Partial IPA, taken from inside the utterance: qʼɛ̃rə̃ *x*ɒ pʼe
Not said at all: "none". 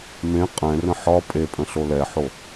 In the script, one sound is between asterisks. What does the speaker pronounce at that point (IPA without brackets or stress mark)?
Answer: ħ